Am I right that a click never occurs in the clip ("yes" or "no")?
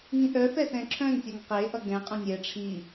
no